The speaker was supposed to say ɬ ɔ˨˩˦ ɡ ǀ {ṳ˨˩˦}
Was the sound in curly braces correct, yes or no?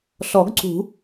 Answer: yes